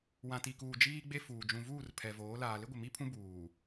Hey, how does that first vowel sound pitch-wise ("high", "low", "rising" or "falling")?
low